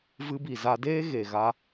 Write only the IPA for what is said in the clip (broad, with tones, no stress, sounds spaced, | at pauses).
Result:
v ɨ˧ b i˨ z a˧ d eː˦ ɣ e˨ ɣ a˦